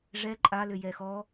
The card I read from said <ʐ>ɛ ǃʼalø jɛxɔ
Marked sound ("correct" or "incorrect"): correct